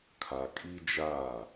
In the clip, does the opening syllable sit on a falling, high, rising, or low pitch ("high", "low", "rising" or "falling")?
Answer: low